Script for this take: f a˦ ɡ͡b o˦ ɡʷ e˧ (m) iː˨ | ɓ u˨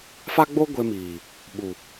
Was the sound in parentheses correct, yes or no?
yes